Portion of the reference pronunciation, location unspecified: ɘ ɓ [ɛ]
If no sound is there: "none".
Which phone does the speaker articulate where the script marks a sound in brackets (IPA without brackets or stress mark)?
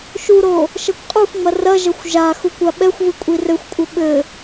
ɘ